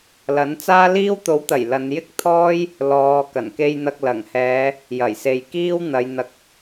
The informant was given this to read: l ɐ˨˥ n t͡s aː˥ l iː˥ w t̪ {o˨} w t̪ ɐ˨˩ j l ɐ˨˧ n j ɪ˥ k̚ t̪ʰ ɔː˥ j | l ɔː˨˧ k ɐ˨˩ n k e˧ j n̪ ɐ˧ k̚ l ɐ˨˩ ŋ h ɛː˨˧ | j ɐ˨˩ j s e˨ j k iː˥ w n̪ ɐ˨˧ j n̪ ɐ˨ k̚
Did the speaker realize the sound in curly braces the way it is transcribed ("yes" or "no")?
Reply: no